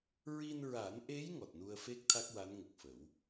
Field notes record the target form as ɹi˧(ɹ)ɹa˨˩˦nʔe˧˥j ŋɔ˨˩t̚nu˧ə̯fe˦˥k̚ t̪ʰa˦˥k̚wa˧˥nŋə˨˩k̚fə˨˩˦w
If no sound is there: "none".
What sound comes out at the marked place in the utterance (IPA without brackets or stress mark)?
n